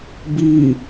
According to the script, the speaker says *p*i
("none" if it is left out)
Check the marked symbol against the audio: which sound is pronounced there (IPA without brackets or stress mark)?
b